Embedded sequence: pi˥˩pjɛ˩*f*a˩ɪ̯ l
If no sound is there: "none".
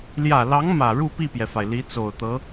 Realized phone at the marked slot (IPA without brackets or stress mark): f